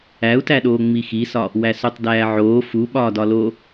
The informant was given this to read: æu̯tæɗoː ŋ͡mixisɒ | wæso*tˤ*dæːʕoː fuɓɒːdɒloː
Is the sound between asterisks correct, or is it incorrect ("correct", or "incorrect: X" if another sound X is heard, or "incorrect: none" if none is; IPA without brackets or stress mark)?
correct